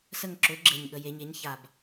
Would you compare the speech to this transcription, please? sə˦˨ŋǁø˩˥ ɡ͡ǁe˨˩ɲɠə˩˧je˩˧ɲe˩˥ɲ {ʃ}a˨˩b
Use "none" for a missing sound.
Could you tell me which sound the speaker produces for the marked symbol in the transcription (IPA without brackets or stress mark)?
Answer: ç